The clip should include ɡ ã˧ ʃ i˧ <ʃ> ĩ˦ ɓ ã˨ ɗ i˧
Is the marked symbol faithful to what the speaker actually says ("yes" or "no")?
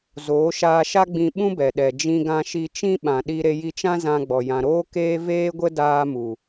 no